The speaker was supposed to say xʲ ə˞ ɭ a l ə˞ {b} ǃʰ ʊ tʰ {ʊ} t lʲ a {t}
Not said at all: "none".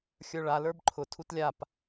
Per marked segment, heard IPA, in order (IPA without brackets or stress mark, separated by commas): b, u, p